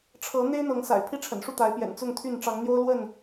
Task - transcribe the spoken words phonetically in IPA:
ʈ͡ʂʰɤ˨˦n̪e˦ɪ̯ n̪ɤ˨˦ŋsa̰˨˩ɪ̯pʰi˦ʈ͡ʂʰə̰˨˩n ʂu˥˨t̪a˨˦ɪ̯pjɛ̰˨˩n t͡sʊ˥˨ŋt̪ʰy˥˨n ʈ͡ʂɑ˨˦ŋn̪jo˦ʊ̯lwə˥˨n

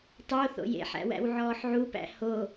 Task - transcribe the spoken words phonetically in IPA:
tˤo θo̰jḛħæ̰wæ̰w ʕɔːħʕupæ̰ ho

